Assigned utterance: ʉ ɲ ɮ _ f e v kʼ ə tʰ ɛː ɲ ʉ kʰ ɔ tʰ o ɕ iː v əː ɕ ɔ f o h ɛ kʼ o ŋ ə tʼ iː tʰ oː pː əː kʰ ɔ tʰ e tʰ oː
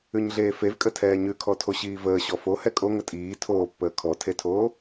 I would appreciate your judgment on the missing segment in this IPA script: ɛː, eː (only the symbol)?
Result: eː